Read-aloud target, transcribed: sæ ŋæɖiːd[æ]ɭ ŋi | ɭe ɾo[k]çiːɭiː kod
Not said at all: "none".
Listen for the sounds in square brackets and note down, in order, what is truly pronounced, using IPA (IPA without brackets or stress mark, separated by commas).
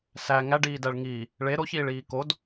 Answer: æ, none